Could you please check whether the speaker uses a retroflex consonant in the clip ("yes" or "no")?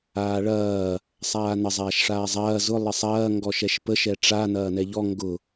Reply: yes